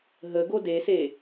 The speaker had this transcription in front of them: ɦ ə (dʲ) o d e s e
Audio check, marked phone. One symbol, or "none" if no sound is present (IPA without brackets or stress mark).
ɡ